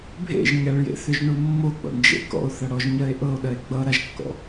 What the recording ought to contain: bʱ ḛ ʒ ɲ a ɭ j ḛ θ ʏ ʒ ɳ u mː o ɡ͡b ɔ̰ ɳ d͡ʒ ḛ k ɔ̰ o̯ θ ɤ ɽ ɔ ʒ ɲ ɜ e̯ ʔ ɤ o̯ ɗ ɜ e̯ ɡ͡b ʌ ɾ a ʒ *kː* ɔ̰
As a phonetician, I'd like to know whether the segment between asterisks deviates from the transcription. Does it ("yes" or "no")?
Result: no